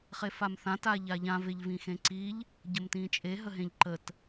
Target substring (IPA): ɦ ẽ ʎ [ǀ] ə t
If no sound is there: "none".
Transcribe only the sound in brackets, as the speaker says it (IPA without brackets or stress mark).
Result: ǃ